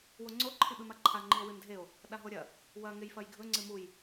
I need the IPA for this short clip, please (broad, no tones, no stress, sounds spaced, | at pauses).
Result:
w o ŋ͡ǀ o ǃʰ i ɓ ɨ m a ǃʰ a ŋ͡ǃ i o̯ w ɨ n dʱ e o̯ | ɗ a ɦ o ɾʲ ɐ | w ɐ ŋ e j f ɐ j ɡʱ ɵ ŋ͡ǀ ɨ m u j